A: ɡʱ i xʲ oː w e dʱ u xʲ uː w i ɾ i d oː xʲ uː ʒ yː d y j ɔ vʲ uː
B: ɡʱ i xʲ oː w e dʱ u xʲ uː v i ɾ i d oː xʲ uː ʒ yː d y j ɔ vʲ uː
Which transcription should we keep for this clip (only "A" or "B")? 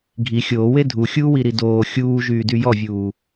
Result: A